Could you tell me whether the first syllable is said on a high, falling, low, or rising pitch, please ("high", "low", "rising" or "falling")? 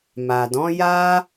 low